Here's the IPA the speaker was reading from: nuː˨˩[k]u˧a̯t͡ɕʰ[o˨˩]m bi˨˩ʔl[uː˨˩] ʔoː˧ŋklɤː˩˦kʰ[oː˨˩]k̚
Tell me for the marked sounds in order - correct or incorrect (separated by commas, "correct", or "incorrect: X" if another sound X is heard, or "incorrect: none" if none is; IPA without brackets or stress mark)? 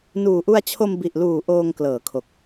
incorrect: ʔ, incorrect: o˧, correct, incorrect: o˨˩